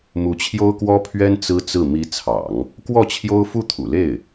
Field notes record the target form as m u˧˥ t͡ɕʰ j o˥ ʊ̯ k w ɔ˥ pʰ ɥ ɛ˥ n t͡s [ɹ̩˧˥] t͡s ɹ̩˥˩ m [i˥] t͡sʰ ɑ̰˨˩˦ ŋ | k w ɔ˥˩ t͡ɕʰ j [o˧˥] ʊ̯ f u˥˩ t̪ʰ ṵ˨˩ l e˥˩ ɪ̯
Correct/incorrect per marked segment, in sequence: incorrect: ɹ̩˥, incorrect: i˧˥, incorrect: o˥

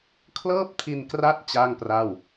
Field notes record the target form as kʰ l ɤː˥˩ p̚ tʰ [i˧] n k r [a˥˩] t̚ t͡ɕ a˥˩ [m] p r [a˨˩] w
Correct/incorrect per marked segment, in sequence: correct, incorrect: a˦˥, incorrect: ŋ, incorrect: a˥˩

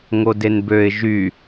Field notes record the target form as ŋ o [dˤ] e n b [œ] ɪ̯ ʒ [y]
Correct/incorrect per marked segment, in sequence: incorrect: d, incorrect: ø, correct

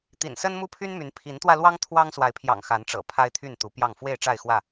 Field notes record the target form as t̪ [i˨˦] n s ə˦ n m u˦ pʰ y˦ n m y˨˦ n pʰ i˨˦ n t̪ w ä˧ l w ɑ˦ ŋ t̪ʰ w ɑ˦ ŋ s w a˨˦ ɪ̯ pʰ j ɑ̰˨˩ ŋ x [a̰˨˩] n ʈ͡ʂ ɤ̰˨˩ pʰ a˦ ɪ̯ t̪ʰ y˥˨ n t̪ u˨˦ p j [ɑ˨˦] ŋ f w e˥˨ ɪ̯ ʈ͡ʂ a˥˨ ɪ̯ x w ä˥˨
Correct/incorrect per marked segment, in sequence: incorrect: ḭ˨˩, incorrect: a˨˦, incorrect: ɑ˥˨

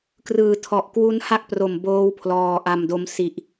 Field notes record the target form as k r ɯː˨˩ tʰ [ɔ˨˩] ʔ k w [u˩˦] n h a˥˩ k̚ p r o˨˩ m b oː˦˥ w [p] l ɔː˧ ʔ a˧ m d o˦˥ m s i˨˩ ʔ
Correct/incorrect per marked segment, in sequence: correct, incorrect: u˦˥, incorrect: pʰ

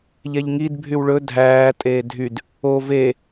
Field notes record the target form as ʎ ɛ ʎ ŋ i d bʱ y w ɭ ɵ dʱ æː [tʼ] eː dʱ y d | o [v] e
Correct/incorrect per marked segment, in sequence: correct, correct

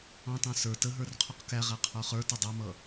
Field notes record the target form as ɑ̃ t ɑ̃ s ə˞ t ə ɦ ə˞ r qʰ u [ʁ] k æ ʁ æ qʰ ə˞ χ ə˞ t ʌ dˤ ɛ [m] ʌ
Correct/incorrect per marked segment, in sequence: incorrect: q, correct

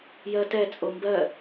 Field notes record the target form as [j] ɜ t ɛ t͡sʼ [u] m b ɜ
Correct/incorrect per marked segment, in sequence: correct, incorrect: o

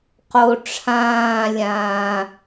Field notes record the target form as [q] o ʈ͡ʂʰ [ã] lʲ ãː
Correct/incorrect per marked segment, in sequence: correct, incorrect: ãː

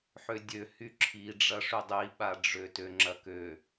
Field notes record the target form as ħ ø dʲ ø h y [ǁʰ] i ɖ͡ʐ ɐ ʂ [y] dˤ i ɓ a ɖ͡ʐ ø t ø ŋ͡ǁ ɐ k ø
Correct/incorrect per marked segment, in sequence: correct, correct

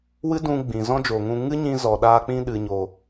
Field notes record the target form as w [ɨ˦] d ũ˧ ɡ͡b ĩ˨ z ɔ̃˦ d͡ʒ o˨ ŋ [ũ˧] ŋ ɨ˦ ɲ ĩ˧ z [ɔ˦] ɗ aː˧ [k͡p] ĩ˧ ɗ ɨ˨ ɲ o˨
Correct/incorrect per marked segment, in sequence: correct, correct, incorrect: ɔ˨, correct

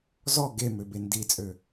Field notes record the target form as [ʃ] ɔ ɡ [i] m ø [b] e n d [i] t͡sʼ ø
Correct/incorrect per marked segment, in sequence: incorrect: z, incorrect: e, correct, correct

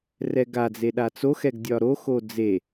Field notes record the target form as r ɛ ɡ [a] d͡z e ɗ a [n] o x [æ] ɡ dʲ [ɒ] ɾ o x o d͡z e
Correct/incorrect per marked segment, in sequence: correct, incorrect: t͡s, incorrect: ɛ, correct

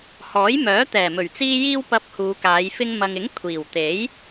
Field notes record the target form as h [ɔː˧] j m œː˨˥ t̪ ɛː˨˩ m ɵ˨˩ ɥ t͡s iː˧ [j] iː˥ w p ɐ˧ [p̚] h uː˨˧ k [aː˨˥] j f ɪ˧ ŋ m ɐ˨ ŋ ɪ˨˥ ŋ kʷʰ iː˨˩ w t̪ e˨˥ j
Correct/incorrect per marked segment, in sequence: incorrect: ɔː˨˥, correct, correct, incorrect: aː˨˧

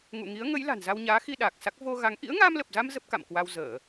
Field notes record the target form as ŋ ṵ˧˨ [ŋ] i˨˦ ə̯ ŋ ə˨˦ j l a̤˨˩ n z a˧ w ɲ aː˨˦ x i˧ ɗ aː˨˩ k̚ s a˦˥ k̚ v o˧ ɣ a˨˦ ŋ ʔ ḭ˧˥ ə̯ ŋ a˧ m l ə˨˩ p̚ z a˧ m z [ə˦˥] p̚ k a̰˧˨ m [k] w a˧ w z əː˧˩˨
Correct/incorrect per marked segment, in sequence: correct, correct, correct

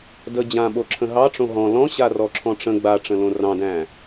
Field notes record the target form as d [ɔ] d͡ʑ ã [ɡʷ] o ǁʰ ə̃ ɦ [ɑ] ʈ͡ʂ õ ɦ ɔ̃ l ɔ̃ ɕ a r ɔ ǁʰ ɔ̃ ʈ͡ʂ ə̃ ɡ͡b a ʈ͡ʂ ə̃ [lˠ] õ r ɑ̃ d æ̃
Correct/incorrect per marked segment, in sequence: incorrect: ə, incorrect: ɓ, correct, incorrect: l

